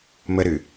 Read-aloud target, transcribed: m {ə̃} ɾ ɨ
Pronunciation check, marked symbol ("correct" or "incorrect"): incorrect